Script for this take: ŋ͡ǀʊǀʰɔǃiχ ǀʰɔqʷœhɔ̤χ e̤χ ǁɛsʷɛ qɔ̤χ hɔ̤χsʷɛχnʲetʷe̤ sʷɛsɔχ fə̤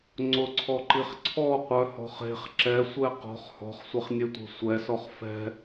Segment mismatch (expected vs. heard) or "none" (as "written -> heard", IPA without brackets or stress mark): ə̤ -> ɛ̤